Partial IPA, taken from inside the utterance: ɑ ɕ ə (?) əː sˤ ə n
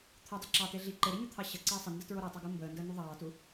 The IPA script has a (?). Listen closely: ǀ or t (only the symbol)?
ǀ